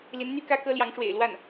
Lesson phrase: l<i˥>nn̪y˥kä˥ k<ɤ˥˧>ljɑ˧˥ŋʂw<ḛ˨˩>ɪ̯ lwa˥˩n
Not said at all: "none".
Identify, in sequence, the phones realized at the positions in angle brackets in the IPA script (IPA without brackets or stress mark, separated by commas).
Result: i˧˥, ɤ˥, ḛ˨˩